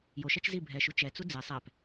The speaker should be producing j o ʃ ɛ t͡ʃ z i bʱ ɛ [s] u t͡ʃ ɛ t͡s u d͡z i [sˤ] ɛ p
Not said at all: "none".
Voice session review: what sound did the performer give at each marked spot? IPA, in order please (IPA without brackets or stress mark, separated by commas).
ʃ, sˤ